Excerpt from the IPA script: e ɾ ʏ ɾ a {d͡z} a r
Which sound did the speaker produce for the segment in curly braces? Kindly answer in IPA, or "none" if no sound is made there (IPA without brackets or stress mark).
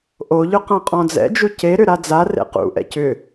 d͡z